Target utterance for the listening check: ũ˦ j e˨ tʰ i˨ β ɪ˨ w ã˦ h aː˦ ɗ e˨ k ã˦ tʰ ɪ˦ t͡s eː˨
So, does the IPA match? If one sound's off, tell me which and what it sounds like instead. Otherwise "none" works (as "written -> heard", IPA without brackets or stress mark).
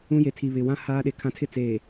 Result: k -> kʰ